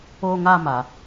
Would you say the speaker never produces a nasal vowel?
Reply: yes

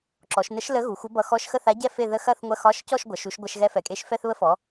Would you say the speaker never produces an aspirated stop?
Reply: yes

